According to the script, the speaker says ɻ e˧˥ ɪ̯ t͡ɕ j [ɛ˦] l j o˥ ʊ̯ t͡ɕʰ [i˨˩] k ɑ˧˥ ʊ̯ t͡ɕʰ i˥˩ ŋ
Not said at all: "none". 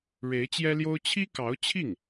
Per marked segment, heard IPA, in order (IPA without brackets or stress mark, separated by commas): ɛ˥, i˥